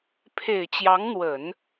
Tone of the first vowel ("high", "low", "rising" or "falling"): low